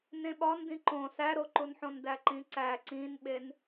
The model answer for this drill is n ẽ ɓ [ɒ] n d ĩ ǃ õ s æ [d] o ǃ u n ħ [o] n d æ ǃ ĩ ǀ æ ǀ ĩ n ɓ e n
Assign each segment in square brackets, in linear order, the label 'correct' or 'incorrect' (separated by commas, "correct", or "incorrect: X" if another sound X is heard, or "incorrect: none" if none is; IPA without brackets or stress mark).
correct, incorrect: ɾ, incorrect: õ